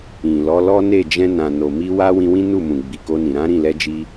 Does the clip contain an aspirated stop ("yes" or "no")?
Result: no